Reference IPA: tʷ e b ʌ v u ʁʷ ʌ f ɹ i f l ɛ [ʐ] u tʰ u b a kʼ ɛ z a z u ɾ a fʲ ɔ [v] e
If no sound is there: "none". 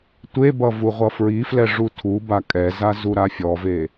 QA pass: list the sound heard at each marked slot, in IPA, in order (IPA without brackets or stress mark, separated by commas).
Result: ʐ, v